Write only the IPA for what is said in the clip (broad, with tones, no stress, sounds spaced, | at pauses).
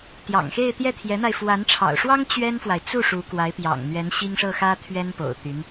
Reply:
t̪ j ɑ̰˨˩ ŋ x e˥˧ ɪ̯ t̪ j ɛ˥˩ t̪ʰ j ɛ˧˥ n̪ a˧ ɪ̯ f w a˧˥ n ʈ͡ʂʰ ɑ̰˨˩ ʊ̯ ʂ w ɑ˥ ŋ t͡ɕ ɥ ɛ˥ n f w a˨ ɪ̯ t͡s u˥˩ ʂ u˧˥ k w a˧˥ ɪ̯ p j ɑ̰˨˩ ŋ n̪ ɥ ɛ˧˥ n ɕ i˥ ŋ ʂ ɤ˥˩ x ä˥ t̪ʰ ɥ ɛ˥ n p o̰˨˩ ʊ̯ t̪ y˧˥ n